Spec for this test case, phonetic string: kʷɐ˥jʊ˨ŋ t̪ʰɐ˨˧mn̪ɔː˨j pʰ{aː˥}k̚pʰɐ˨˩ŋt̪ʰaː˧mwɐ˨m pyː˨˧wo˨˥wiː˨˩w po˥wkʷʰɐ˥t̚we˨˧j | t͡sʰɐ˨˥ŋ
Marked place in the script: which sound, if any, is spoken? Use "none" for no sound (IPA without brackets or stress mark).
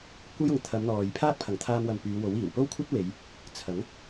aː˥